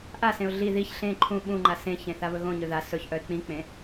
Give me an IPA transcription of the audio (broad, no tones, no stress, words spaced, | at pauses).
ʔasẽʊ̯ ɮi ðiç ɬẽ ǃʰũ ɓũŋ͡ǃa sẽçẽθaβɵ ɣõɲɵ ða sɵçʔœɪ̯ k͡pĩk͡pẽ